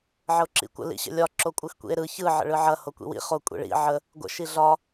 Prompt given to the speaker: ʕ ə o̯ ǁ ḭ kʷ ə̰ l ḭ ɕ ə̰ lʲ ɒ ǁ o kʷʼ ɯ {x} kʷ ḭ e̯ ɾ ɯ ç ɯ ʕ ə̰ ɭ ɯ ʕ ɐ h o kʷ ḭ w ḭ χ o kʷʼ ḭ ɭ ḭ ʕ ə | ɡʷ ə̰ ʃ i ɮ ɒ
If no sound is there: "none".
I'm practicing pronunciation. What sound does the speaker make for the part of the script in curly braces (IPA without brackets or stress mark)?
x